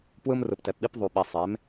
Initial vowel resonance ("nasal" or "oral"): oral